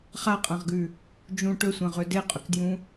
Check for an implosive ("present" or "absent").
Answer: absent